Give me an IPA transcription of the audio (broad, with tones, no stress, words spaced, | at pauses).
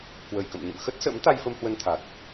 kwə˨˩jkə̰˧˨m ɲə̰˧˨mxə˦˥t̚sə̰˧˥m t̪a˧jfə˧m hwə˧nt̪ʰa˨˩t̚